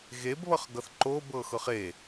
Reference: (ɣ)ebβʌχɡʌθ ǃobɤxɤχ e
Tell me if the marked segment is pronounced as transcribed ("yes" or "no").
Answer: yes